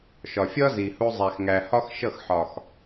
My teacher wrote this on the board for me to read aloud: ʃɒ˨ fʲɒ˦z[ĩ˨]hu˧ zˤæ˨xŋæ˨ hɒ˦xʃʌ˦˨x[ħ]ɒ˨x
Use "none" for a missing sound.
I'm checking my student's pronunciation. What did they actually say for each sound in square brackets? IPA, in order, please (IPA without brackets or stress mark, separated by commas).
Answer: i˨, ħ